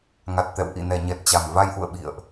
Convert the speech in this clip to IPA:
ŋ a˨˩ t̚ t̪ ɛ̰˧˨ w ʔ ḭ˧˨ n ɛ˧˩ ɲ ɛ˨˩ t̚ t͡ɕ a˨˩ m v a˧ j ʔ ṵ˧˨ ə̯ ɓ ḭ˧˨ ə̯ ʔ

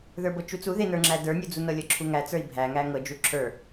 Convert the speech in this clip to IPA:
ð ə˞ b ɤ t͡ʃ u t͡s u ð e n ə˞ ŋ͡ǁ æ d ə˞ nʲ u d͡z u n ɤ lʲ ɤ ǁʰ u ŋ æ t͡s ə˞ i̯ bʱ æ ŋ æ ŋ ɤ d͡ʒ u ǁʰ ə˞

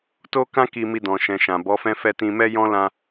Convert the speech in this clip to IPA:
t o˦ k ã˦ k i˧ m i˧ d ɔ̃˨ ʃ ɛ̃˨ ʃ ã˨ b ɔ˨˦ f ɛ̃˦ f ɛ˧ t ĩ˧ m ɛ˦ j ɔ̃˦ l ã˧

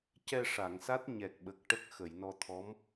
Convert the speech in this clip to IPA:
c ɛ˧ ʂ a˨˩˨ ŋ s a˦˥ t̚ ɲ ɛ˨˩ k̚ ɓ ə˨˩ k̚ ʈ ə˦˥ k̚ x ə˨˩˨ j n ɔ˧ t̪ʰ ɔ˧˥ m

